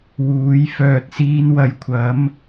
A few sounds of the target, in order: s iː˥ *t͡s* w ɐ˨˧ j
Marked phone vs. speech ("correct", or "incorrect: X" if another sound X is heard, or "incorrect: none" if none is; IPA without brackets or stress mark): incorrect: n